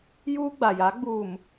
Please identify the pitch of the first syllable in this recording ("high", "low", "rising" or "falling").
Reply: high